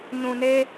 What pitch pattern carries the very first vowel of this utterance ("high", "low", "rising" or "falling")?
low